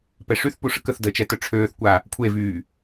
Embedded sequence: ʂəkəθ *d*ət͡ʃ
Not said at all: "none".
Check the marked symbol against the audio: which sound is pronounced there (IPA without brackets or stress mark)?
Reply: d